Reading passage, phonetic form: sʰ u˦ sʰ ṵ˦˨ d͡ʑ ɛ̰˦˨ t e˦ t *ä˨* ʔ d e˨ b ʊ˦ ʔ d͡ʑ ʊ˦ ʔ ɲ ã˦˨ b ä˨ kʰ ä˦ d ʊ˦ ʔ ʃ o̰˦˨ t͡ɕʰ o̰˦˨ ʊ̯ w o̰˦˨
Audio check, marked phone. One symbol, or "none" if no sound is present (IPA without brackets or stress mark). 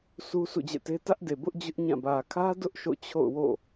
ä˦